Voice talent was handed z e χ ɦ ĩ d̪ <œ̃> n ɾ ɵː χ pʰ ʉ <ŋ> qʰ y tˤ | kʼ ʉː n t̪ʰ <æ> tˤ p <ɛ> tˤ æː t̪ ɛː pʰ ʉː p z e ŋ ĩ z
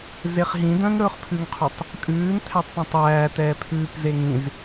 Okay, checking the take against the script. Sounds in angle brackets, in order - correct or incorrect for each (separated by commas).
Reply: correct, correct, correct, incorrect